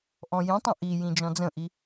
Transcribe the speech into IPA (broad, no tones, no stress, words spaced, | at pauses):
ʔɔ̃jĩtˤə̃ ʔijĩ d͡ʒɔ̃d͡zə̃ʔi